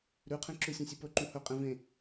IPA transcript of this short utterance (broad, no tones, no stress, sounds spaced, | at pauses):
ɾ ʉ qʰ ẽ ǁ ʉ sʲ ẽ sʲ ɨ p ɵ ǃ ũ h ɵ qʼ ẽ v ẽ